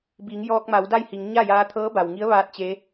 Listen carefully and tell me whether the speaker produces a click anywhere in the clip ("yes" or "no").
no